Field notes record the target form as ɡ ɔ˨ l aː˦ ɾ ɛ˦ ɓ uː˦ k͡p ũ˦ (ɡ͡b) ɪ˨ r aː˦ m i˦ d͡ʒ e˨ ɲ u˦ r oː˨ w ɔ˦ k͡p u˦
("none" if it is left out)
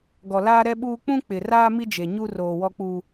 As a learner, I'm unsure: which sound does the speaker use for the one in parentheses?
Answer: k͡p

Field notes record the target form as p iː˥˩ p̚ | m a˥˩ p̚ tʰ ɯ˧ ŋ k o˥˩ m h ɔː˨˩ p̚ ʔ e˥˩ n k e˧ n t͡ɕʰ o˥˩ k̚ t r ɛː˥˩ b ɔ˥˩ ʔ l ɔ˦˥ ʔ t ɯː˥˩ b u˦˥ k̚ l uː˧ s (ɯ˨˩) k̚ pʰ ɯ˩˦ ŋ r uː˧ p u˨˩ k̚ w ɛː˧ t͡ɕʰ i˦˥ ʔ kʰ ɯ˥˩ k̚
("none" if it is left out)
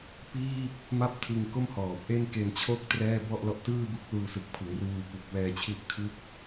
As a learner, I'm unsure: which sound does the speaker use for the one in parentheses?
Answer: ɯ˨˩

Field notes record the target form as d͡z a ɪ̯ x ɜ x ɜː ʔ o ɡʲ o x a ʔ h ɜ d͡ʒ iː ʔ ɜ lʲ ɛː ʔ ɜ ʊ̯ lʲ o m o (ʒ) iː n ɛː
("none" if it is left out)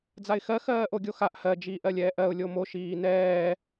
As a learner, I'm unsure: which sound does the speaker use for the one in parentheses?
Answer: ʃ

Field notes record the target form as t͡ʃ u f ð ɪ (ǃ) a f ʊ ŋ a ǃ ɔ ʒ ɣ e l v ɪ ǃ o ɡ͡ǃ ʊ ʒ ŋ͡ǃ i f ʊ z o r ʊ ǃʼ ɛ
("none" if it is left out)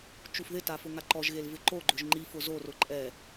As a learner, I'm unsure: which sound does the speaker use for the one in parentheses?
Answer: t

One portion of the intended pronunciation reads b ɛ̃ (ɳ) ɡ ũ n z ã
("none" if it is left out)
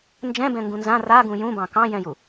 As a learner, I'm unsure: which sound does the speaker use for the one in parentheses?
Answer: ŋ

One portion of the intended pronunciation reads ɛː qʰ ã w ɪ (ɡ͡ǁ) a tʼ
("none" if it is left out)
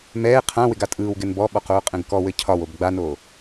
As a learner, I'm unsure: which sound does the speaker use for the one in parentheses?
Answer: ɡ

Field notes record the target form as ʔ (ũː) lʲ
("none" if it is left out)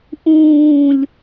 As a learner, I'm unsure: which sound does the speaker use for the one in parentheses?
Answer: ũː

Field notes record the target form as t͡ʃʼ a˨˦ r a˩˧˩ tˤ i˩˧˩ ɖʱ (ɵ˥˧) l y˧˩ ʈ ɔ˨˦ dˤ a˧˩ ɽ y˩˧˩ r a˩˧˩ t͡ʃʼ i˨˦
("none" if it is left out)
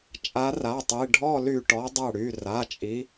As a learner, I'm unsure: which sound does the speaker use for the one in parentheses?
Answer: ɔ˥˧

